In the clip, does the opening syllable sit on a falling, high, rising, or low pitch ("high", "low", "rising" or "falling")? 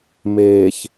low